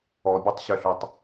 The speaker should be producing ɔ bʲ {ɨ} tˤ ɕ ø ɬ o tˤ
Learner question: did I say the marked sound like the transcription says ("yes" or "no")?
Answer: no